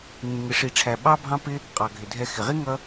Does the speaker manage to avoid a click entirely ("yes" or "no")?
yes